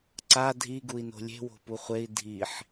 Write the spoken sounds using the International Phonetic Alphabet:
ǀa dʱiɡui̯ no̤lʲe̤wo̤ puχʷei̯ dʱiħ

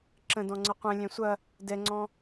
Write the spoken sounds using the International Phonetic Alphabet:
ǁə̃dɔ̃ŋ͡ǀə qʷɛ̃ lʲɛ̃sʷɐ | dɛŋ͡ǀɔ̃

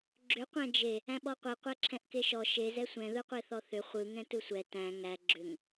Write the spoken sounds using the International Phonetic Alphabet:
ɡ͡ǁʏ qʷæ̃d͡ʒe | æ̃ɓɔqʷe qʷæǁʰɛ̃ʔkeʃɔ ʃez ɛsʷɛ̃ ðɯqʷeθɔθʏ χʷɯ ŋɛ̃tɯsʷɛ tæ̃ ŋæ ɡ͡ǁʏŋ

